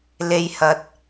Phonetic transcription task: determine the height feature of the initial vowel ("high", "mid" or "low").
mid